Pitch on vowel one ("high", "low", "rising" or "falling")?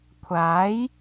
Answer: rising